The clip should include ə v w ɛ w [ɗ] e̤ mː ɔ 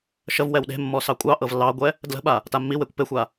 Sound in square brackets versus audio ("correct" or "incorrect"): correct